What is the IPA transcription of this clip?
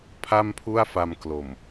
pʰ a˥˩ m pʰ u˥˩ a̯ f a˧ m k l o˨˩ m

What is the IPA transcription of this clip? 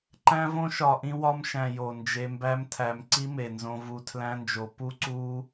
ǃ æ̃˦ v õ˦ ʃ ɒ˨ ʔ ĩ˧ w ɒ˧ m ʃ æ̃˨ j o˨ n d͡ʒ e˧ m b æ˦ m tʰ æ˧ m ǀ i˦ m e˨ n z õ˧ v u˧ tʰ l æ̃˦ n d͡ʒ o˧ p u˦ ǀ u˦

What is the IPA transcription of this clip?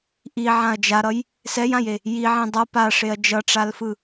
ʔ i ʕ ã ɐ̯ d͡ʒ a ɾ ʌ j | s ɛ j ã j e | j i ʕ ẽ dˤ ʌ p a ʂ e ɐ̯ d͡ʒ ʌ ʈ͡ʂ a l f ɯ

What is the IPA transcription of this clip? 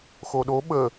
x o ɗ o ɓ ə

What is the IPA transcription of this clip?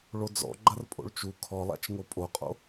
ɭ o d͡z ɔ̰ ɡ͡ǃ ɐ r pʼ o̰ ɭ t͡ʃ u kʰ ɔ lˠ a̰ t͡ʃ ŋ o pʼ o qʼ o̰

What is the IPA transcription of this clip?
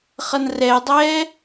χ ʌ n r ɛ dˤ ɛː

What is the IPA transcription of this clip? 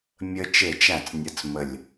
mʲ ə˦ t͡ʃ e˥˨ t͡ʃ æ˥˨ t͡s nʲ ɯ˨˥ t͡s m ə˧˩ lʲ

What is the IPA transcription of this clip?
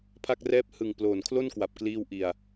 pʰ a˥˩ k̚ r ɛː˥˩ p̚ h ɯ˨˩ ŋ p l oː˨˩ n kʰ l o˥˩ n k w a˨˩ p̚ k l iː˧ w ʔ i˨˩ a̯

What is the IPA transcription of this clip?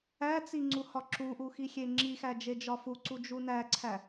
æ t͡s i ŋ͡ǀ u h ɒ ǁ u ʔ u x i xʲ e ŋ͡ǁ i x æ d͡ʒ e d͡ʒ ɒ f u ǀ u d͡ʒ u n æ ǀʰ æ

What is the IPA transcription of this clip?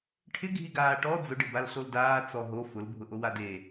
ʈʰ ɪ ɡʱ i ɡ aː ʈ ɔ d͡z ʊ ɖ ɪ b a l ɬ o l d aː t͡s ɔ ɦ o f ʊ l bʱ ʊ ʔ o w a d e

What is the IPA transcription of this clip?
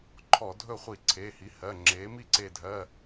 ǃʰ ɔ˧˩˧ dʱ ɵ˥˩ χʷ i˧˩˧ ǀʰ e˩˧˩ h i˩˥ h ɜ˩˧˩ ŋ͡ǁ e˩˥ m i˥˩ ǀ e˧˩ dʱ ɜ˩˧˩

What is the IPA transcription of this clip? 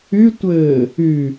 y tʷ ɘː | y

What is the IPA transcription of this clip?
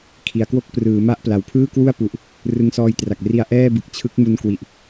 kʰ i˩˦ a̯ k w o˥˩ k̚ p r ɯː˩˦ m a˥˩ ʔ p l a˨˩ w pʰ ɯː˥˩ k w u˥˩ a̯ p u˨˩ ʔ | r ɯ˧ ŋ s ɔː˧ j t r a˨˩ k̚ r i˧ a̯ ʔ ɛː˥˩ b ɯ˨˩ k̚ t͡ɕʰ ɯ˦˥ k̚ m u˧ n k w i˨˩ ʔ

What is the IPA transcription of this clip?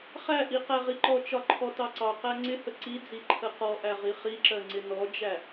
χ æ ʔ i q æ ʁ i ǃ ɔ t͡ʃ ɒ ǃʰ ɔ t ɑ ǀ ɑ q æ ŋ͡ǀ ɪ h ə ǀ i d͡z i ǃʰ ə q ɔ ʔ æ ʁ i χ i ǁ ɜ ŋ͡ǀ ɪ n ɔ d͡ʒ æ

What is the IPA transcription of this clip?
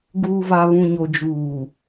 ɡ uː˨ v a˨ β ũ˨ ɲ o˨ d͡ʒ uː˨

